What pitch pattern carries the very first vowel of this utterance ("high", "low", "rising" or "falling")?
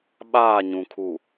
falling